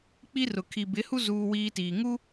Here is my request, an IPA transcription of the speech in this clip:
k͡p i˦ r ʊ˨ kʰ i˨ b ɪ˨˦ h u˦ z uː˦ w iː˦ t iː˨ ŋ u˦

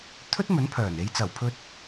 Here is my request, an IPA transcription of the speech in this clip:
t̪ʰ ɵ˥ t̚ m ɵ˨˥ n pʰ œː˨˩ n e˨˧ j t͡s ɐ˨˩ w pʰ ɵ˧ t̚

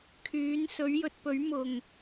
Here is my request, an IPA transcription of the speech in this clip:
kʰ yː˨˥ n s ɵ˨˥ ɥ j ɵ˨ t̚ p ɵ˨˥ ɥ m ʊ˨˩ ŋ

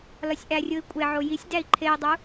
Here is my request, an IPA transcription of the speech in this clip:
l ɒ sʲ ʔ æ rʲ o i̯ kʷʼ e ʕ o j i sʲ d æ i̯ ǃʰ e i̯ dˤ u

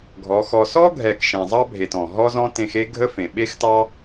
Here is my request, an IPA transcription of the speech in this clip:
ɡʱ ɔ˨˦ x ɔ˧ s ɔ˦ ɡʱ ɛ˨ k ʃ ẽ˨ zˤ ɑ˦ bʱ e˨ t ɔ̃˨ ɦ ɔ˦ z ɔ̃˦ t ẽ˧ x e˦ ɡʱ ə˦ f ẽ˨ ɓ e˦ x t ɑ˦

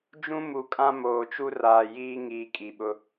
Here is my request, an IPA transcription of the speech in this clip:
d͡ʒ ũ˦ m u˨ kʼ ã˦ m oː˨ t͡ʃ u˦ r aː˨ j iː˦ ŋ iː˨ kʼ i˨ ɓ ʊ˦

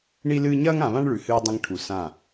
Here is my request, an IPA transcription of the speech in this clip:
ɳ i˦ l ɨː˦ ɲ ɐː˦ ŋ ã˨ β ã˦ ɳ ɭ ʉ˨ h ɨː˦ dˤ ɐ̃˦ ŋ ʈʰ u˨ s ã˦˨

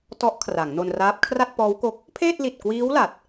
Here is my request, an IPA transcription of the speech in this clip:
t ɔ˦˥ ʔ kʰ r a˩˦ ŋ n o˧ n r aː˦˥ p̚ kʰ r a˥˩ t̚ p ɔː˦˥ w k o˦˥ k̚ | pʰ eː˥˩ t̚ l i˨˩ t̚ k w iː˦˥ w l a˨˩ t̚

